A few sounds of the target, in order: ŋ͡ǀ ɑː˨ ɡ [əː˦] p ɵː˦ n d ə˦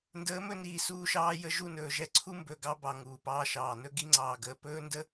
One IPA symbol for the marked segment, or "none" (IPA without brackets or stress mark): əː˨